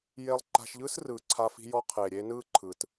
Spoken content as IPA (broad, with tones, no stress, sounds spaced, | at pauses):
j e˧ lˠ ǃ a̤˧ ʃ ʎ ɯː˦ s r ɯː˨ ǀʰ a˧ f i̤˧ j ɔ˧ qʰ eː˨ ɾʲ eː˧ n ɯː˦˨ ǃʰ ɯ˨ t